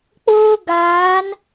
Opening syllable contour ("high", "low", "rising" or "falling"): high